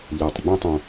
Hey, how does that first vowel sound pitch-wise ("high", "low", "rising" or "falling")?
low